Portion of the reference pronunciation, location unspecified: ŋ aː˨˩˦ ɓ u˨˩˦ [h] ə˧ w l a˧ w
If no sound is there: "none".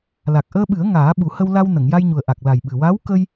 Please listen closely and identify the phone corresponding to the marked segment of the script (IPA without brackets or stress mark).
h